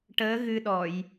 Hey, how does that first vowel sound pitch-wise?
rising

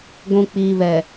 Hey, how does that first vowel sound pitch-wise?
low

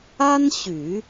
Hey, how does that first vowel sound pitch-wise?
high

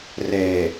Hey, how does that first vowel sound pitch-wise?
low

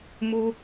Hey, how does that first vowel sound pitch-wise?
high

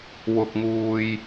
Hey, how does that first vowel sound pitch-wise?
high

